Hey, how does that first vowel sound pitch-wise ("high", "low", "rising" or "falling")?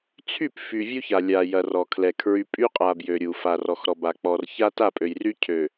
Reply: falling